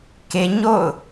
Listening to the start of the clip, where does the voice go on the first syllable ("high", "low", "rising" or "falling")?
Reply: high